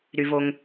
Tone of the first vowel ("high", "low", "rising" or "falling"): low